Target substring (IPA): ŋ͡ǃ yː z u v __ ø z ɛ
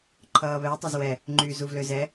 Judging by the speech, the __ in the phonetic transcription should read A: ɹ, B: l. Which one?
B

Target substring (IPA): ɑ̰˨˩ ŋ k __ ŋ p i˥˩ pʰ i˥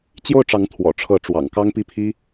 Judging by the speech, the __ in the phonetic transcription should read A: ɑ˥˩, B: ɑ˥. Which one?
B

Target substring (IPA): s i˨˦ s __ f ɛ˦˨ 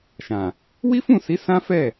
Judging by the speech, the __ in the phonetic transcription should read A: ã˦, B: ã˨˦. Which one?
A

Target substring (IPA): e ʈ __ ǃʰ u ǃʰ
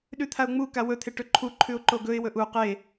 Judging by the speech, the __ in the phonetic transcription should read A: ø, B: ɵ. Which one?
B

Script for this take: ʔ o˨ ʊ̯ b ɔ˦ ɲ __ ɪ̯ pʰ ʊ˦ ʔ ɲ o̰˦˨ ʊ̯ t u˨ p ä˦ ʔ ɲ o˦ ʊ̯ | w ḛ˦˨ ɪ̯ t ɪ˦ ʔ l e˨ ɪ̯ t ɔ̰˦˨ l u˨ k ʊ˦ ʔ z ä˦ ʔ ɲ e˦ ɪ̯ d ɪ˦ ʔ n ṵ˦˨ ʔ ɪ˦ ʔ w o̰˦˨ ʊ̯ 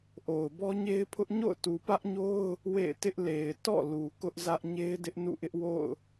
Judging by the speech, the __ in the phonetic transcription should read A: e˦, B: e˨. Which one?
A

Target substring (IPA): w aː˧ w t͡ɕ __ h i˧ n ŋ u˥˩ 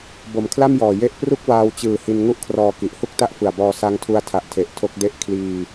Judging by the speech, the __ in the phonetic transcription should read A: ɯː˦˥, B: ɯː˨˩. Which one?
B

